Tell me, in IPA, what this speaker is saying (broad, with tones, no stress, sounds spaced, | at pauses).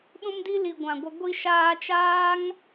ɗ ũ˦ m d i˦ l i˨ ɡʷ ã˨ ɡʷ ə˧ ɡʷ i˧ ʃ aː˧ t͡ʃ aː˦ ŋ